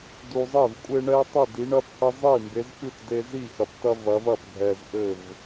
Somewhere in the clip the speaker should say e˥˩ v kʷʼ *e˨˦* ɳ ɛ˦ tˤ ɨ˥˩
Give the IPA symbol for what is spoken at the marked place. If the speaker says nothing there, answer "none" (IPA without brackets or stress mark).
e˦